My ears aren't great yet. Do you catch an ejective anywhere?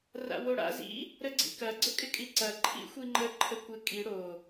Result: yes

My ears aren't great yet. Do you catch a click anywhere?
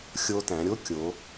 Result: no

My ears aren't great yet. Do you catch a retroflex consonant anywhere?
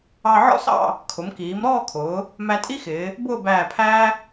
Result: no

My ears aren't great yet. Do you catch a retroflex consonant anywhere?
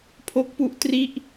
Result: no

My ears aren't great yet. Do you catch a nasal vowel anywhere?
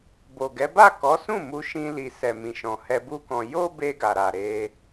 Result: yes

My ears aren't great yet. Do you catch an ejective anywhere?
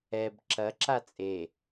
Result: yes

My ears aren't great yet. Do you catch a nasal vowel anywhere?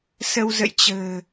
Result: no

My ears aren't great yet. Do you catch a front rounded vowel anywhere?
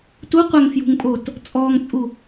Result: no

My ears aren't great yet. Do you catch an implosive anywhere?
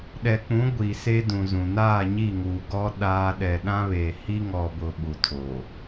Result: yes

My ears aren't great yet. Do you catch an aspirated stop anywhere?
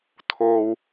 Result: yes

